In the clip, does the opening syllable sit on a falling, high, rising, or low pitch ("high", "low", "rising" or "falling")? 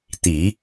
low